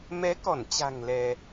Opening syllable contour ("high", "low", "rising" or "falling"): rising